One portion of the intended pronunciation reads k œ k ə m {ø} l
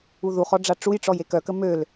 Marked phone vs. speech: correct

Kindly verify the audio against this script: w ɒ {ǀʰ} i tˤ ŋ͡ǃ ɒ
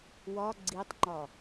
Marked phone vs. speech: incorrect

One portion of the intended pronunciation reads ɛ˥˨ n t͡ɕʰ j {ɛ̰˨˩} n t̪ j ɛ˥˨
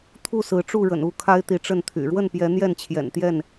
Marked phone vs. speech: correct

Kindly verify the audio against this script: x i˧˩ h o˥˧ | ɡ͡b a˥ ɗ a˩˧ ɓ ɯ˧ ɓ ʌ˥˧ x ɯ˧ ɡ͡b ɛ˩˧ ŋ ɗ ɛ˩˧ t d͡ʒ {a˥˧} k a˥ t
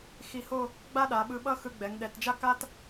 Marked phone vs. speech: incorrect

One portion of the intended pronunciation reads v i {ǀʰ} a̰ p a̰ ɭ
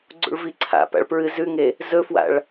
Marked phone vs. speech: correct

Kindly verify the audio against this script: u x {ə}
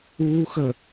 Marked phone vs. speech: correct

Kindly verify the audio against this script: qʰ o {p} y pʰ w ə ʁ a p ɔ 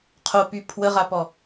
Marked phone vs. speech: correct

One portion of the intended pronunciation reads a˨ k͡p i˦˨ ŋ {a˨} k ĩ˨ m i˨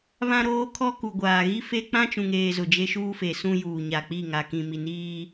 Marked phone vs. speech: correct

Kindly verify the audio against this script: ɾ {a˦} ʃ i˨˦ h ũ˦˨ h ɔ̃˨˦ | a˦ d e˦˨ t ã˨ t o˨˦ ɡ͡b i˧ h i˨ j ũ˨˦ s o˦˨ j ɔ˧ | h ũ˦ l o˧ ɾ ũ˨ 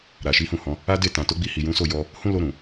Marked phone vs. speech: incorrect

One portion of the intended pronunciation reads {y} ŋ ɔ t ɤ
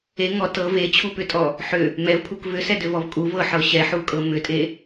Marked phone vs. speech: incorrect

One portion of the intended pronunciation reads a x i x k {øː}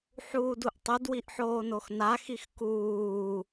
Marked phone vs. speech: incorrect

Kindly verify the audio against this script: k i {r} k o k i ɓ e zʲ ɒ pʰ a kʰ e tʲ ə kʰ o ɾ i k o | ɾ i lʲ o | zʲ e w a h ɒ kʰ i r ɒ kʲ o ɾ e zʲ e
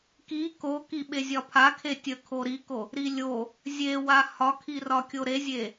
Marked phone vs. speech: incorrect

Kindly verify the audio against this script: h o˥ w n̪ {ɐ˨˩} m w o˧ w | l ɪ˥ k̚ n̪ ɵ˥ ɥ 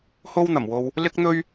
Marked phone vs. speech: correct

